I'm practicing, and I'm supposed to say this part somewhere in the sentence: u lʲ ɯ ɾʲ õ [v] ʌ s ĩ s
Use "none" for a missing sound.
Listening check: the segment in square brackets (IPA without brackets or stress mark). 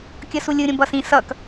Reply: b